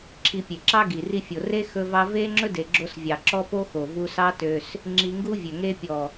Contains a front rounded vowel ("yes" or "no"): yes